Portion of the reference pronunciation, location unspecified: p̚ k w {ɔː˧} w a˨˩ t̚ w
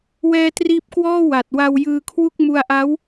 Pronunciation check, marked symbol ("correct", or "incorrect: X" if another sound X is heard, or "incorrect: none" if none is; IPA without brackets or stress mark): incorrect: ɔː˥˩